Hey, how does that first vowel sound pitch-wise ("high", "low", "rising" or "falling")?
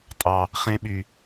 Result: low